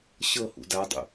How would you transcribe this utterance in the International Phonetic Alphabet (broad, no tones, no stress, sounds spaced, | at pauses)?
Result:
ɕ ɤ h ṵ d a dˤ ṵ